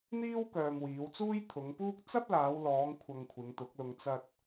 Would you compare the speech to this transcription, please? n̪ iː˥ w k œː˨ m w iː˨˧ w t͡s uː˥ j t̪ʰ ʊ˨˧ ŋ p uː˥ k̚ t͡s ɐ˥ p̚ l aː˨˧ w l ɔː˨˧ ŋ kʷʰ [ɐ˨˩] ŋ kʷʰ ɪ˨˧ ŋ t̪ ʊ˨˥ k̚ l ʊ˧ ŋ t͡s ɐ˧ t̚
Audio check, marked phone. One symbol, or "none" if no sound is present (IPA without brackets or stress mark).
ɐ˧